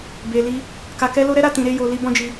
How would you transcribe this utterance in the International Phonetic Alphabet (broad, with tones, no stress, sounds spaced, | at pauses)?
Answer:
b e˨ l i˧ | k a˨ k ɛ˧ l o˧ ɾ ɛ˦ ɾ a˧ t ĩ˨ ɾ e˧ j o˨ l i˧ b ɔ̃˧ d͡ʒ i˧